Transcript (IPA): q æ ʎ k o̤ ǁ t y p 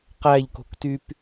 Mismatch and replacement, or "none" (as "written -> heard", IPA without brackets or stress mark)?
ǁ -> k